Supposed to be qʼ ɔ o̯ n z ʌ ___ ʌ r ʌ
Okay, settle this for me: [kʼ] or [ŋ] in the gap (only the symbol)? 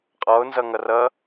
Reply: ŋ